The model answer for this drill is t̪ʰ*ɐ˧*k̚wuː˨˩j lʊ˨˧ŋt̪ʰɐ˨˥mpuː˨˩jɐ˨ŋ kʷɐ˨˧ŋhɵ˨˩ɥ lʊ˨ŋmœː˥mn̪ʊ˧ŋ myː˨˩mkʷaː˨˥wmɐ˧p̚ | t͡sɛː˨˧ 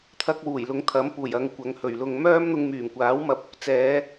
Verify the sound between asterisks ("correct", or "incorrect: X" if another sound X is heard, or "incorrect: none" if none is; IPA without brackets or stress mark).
correct